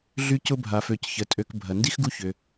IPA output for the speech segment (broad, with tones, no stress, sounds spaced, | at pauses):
ɮ y˦ c ʊ˥ bʱ a˨ f ø˨ c ç ə˩ tʼ ø˨ k bʱ ɐ˩ n d i˥ x ɡ u˦ ç ʏ˩